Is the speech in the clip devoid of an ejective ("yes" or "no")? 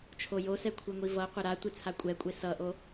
no